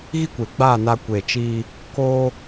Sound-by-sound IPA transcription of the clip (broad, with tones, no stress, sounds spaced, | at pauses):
ɣ i˦ kʷ e˨ ɡ͡b aː˦˨ n a˧ kʷ eː˨ t͡ʃ iː˧ | k oː˦